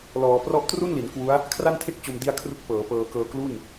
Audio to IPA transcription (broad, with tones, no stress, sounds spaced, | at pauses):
l ɔː˩˦ p r ɔ˦˥ ʔ t r u˥˩ n l i˩˦ n k w u˦˥ a̯ | kʰ r a˥˩ n tʰ e˥˩ k̚ t͡ɕ o˧ m d i˥˩ a̯ kʰ r u˥˩ k̚ p ɤː˩˦ p ɤː˧ k ɤː˧ k l u˥˩ n